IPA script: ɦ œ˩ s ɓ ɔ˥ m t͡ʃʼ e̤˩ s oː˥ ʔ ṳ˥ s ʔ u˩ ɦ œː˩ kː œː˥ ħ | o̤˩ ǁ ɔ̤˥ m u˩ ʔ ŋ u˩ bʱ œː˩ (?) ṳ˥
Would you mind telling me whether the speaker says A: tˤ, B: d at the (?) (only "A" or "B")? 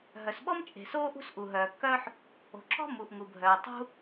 A